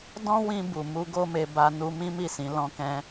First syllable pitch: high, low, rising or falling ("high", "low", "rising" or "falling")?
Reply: high